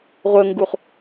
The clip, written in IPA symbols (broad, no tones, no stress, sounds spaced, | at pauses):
ʁʷ ə ŋ ɡ u χ